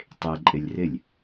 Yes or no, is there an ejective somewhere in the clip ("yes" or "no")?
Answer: yes